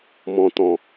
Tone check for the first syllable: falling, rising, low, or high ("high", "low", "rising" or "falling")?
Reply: low